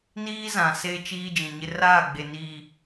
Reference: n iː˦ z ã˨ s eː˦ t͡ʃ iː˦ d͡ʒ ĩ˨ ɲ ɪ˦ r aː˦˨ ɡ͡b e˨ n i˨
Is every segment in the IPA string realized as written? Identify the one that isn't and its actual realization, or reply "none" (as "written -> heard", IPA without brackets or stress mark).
i˨ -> iː˨